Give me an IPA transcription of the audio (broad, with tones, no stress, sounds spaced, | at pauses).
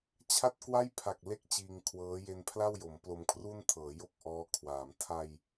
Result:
t͡ɕʰ a˥˩ t̚ k w a˥˩ j pʰ a˨˩ k̚ l e˦˥ k̚ t͡ɕ iː˧ ŋ kʰ w ɤː˦˥ j e˧ n pʰ l a˥˩ w j o˩˦ m p l o˧ m kʰ r u˥˩ n tʰ ɤː˩˦ j o˥˩ k̚ ʔ ɔː˦˥ kʰ w aː˩˦ m tʰ a˧ j